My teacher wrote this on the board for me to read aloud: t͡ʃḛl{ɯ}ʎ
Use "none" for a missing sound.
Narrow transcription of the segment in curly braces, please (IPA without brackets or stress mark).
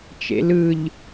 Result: ɯ